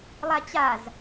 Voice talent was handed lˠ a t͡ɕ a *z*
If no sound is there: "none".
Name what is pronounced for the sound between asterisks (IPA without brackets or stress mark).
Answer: z